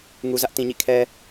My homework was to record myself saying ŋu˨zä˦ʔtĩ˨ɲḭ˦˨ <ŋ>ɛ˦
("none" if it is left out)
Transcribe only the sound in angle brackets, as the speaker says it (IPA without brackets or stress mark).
kʰ